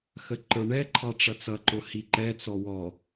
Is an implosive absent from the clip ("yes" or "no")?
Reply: yes